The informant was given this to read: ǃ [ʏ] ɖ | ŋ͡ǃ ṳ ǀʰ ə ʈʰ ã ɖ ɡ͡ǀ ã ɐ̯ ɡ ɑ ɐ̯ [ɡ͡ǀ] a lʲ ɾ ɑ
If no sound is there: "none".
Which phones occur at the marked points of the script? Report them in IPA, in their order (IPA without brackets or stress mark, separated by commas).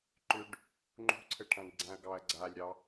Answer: ʏ, ɡ͡ǀ